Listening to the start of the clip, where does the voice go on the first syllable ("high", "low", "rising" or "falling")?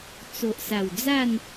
low